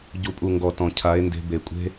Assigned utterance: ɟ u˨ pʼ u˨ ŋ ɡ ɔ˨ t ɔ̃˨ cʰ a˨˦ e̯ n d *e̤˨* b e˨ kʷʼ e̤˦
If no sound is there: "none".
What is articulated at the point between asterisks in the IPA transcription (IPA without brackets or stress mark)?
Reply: e̤˧